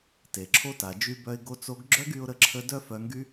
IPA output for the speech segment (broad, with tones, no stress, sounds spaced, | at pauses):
t e˨ ǁʰ o˦ t a˨ d͡ʒ y˧ b œ˧ ɪ̯ ɡ o˧ t͡s o˧ ɡ ɡ͡ǁ œ˦ ɡ y˧ ʊ̯ ɾ ə˦ ǁʰ ə˦ d œ˦ f œ˧ ŋ ɡ y˦